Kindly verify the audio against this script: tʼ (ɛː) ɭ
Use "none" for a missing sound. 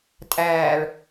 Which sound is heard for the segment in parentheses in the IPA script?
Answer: æː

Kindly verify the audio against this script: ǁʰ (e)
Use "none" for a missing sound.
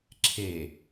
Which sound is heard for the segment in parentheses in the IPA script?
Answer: e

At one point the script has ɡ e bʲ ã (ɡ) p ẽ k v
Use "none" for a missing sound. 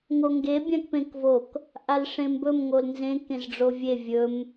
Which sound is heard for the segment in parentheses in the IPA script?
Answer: k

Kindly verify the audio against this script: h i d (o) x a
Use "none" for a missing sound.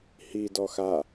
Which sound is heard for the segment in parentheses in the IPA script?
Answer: ɔ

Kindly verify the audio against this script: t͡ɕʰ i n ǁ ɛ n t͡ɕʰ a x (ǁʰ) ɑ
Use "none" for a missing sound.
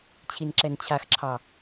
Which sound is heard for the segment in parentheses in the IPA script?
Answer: ǁʰ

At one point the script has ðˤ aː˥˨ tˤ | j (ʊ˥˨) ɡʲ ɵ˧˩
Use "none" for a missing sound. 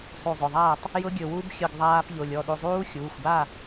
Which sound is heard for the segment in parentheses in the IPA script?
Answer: ʊ˦˥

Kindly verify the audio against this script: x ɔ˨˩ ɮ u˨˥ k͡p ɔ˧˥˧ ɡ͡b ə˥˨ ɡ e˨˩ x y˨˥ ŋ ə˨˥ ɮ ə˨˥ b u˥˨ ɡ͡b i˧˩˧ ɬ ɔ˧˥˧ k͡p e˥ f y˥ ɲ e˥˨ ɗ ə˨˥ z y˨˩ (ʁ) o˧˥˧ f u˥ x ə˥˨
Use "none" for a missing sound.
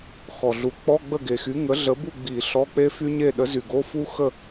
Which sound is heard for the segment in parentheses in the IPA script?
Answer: ɡ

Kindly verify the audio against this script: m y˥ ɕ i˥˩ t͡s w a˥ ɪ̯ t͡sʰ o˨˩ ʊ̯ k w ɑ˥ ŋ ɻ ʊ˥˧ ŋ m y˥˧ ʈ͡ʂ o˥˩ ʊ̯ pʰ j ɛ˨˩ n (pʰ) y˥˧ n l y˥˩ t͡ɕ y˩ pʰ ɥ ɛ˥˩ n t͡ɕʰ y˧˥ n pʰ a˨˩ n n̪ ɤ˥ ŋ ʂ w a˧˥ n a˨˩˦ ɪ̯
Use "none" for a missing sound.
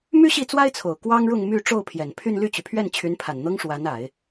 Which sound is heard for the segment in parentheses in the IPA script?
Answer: pʰ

